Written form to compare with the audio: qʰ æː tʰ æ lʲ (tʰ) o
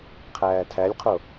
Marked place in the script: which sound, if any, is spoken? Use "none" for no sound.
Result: qʰ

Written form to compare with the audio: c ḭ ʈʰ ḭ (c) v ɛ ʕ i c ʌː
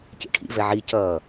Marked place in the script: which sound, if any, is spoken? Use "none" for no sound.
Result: none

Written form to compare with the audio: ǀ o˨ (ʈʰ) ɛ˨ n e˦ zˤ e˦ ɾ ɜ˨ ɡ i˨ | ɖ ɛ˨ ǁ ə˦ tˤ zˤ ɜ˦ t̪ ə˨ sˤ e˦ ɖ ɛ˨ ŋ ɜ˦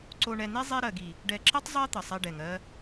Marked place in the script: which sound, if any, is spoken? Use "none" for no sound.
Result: ɳ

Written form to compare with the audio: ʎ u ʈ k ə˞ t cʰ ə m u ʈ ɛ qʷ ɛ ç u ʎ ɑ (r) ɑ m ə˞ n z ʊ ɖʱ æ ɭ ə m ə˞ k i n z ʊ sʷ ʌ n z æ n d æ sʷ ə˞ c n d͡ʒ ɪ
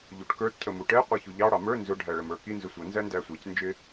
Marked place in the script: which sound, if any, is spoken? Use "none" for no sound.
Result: ɽ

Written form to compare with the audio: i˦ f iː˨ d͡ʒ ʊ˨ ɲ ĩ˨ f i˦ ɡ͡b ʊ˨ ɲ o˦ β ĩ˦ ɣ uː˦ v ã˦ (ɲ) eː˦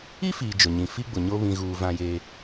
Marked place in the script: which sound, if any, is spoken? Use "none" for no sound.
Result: j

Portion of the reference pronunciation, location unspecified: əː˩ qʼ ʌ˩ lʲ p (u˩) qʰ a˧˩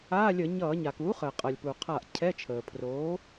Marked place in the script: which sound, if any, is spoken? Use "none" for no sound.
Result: u˩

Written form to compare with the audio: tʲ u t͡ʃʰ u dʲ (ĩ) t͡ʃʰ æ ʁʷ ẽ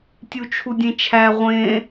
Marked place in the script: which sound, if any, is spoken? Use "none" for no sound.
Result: ẽ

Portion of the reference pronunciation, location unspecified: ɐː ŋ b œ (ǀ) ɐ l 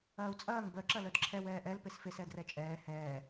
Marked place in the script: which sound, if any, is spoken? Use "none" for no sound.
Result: ǁ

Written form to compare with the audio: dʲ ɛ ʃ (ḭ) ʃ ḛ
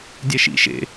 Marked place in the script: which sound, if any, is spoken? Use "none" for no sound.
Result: ḭ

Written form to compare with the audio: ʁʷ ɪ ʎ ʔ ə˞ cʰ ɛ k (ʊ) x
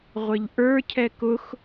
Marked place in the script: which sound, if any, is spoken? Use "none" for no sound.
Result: ʊ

